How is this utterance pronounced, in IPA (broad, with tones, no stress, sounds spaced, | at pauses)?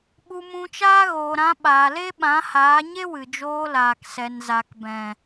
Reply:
ɓ u˧ m ũ˧ t͡ʃ aː˦ ɣ oː˨ ɾ ã˧ ɓ aː˨ l e˦ ɓ ã˨˦ h aː˨˦ ɲ e˦ w ɨ˨ d͡ʒ oː˧ l aː˨ k s ɛ˨ n z a˨ k b ɛ̃˨